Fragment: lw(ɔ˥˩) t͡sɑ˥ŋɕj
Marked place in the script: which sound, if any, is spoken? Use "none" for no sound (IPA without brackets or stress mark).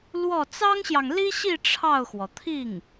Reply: ɔ˥˩